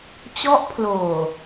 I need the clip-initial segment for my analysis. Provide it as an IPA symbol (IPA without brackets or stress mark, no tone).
t͡ɕ